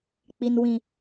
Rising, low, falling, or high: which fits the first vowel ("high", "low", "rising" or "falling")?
low